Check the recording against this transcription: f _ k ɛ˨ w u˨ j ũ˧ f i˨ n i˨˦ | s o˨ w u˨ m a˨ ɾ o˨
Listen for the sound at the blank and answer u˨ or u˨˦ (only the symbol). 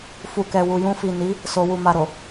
u˨